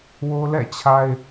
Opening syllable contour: high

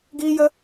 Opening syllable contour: high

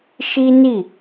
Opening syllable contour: high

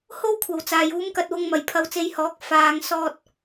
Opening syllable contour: high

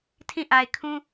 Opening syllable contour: falling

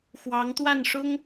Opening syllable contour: rising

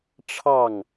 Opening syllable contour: falling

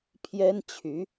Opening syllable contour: high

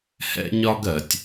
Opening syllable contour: high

